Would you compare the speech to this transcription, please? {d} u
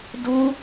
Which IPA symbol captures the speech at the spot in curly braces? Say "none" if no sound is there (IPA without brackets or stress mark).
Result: d